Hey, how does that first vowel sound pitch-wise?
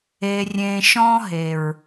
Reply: low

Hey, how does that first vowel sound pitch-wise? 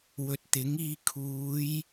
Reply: low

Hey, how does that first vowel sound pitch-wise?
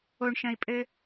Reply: low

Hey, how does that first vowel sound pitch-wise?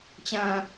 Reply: low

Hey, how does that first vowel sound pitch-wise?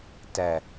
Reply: low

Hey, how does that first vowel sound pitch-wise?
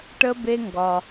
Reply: high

